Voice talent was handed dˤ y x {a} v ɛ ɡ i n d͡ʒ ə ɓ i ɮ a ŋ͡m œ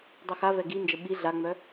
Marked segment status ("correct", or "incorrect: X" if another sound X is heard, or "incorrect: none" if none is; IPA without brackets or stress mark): correct